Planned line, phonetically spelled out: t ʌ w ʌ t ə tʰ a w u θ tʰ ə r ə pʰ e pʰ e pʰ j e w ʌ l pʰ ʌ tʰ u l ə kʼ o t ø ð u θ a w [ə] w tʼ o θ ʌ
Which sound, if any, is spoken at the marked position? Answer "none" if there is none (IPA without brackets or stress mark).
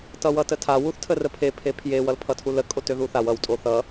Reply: ʌ